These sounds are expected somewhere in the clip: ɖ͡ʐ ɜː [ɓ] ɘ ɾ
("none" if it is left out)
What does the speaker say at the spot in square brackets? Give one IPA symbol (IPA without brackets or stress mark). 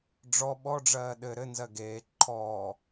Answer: ɗ